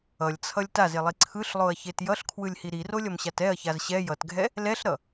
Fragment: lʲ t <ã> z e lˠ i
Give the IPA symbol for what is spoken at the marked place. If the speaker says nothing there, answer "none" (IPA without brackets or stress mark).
a